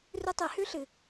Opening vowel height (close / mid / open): close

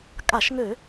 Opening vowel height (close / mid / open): open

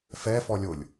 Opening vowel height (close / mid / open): mid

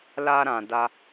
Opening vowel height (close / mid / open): open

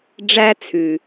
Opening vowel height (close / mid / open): open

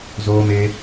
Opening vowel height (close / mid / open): mid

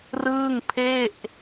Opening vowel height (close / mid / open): close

